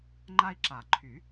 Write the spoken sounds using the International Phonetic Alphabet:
ŋ͡ǃ a˦ i̯ ǁ a˨˩˦ ǃʰ y˨˩˦

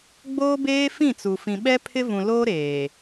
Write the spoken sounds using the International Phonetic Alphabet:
ɡ͡b oː˦ b eː˦ f ĩ˦˨ t͡s u˨ f ĩ˨ ɓ ɛ˦ pʰ ɪ˦ v ũ˨ l oː˦ ɾ eː˨

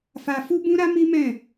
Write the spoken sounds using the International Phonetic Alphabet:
f a˧ f u˦ b ũ˦ ɾ a˦ m i˦ m ɛ̃˦˨

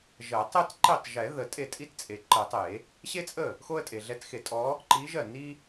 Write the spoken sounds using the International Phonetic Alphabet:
ʒ ɜ˨˩˦ tˤ e˥ t ǃ i˥˩ tˤ ʒ ɛ˨˩˦ ð ə˨ tʼ e˥˩ tʼ i˥ t t͡sʼ e˨ ǃ ə˨˩˦ tˤ e˨˩˦ | ɕ e˥ t͡sʼ ə˥˩ | x o˥ ə̯ tʼ e˨ ɮ ɛ˧˥ t x e˨˩˦ tʼ ɔ˧˥ | ǃ i˧˥ ʒ ɜ˥˩ n i˥

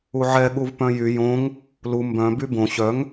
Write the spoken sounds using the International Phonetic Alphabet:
u ʕ ɛ ɠ u v p œ̃ j y j õ ŋ | l u m b œ̃ b y b õ ɕ œ ŋ

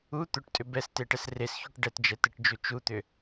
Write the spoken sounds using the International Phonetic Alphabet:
u t̪ ʏ ʈ tʼ ʏ b ɛ s t e ʈ ɛ s r e s ç u ʈ ɖ ɛ t d͡ʒ ɛ t e ʈ d͡ʒ u t͡ʃ u t̪ ʏ

